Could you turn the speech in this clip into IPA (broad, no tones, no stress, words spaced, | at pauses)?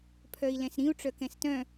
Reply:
pʰœi̯lɛ̃sɾĩu̯ ʈ͡ʂœkɛ̃stœ̃